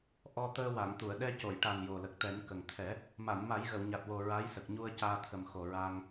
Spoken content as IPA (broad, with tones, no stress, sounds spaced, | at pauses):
ʔ ɔ˧ t̪ əː˧ w a˨˩˨ ŋ t̪ u˨˩˨ ə̯ ɗ ɛ˧ c o˨˩˨ j ʈ a˨˩ n j o˨˩ l ə˨˩ k̚ t̪ ɛ˨˩˦ n k ə˨˩ ŋ t̪ʰ ɛ˨˩˦ | m a˨˩˨ n m a˨˩˦ j ɣ ə˨˩˨ w ɲ a˨˩ t̚ w o˨˩ ɹ a˧˥ j s ə˨˩ k̚ ɲ u˧ ə̯ c aː˧ t̪ʰ ə˨˩ m x o˨˩ ɹ aː˧ ŋ